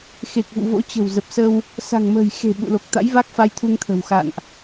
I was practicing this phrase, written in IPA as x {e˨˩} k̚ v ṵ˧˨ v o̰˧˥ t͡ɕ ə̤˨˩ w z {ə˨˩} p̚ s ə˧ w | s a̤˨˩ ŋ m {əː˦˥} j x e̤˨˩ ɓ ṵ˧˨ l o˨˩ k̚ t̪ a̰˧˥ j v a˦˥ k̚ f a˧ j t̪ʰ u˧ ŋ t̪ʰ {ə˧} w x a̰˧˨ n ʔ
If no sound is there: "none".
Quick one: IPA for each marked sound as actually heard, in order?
e˨˩, ə˨˩, ə̤ː˨˩, ə̤˨˩

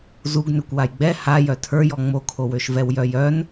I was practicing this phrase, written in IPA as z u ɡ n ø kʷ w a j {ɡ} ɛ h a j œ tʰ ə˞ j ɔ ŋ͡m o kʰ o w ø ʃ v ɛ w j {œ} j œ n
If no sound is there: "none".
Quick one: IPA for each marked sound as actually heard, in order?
ɡ͡b, œ

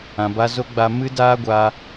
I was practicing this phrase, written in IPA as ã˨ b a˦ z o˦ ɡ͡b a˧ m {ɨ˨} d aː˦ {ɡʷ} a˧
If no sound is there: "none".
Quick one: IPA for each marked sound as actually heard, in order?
ɨ˦, ɡʷ

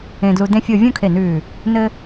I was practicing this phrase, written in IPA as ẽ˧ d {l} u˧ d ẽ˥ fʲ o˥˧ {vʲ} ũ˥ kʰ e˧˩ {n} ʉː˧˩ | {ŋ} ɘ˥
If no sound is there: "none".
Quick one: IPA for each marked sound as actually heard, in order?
l, vʲ, n, n

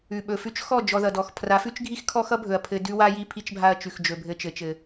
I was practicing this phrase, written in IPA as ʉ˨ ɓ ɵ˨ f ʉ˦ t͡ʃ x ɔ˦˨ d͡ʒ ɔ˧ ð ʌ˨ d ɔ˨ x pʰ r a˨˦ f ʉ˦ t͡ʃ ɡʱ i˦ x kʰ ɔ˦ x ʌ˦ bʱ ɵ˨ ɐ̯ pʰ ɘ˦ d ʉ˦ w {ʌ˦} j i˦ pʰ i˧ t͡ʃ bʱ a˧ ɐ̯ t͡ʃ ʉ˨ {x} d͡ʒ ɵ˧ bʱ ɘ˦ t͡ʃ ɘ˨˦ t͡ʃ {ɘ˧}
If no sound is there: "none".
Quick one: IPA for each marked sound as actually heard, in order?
a˦, x, ɘ˧

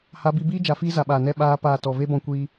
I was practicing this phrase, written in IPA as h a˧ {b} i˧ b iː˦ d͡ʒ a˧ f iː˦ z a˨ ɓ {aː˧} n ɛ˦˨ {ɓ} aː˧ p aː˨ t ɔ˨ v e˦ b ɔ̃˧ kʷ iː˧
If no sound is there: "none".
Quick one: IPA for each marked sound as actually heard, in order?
b, aː˨, ɓ

